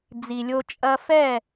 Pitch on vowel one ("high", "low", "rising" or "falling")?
low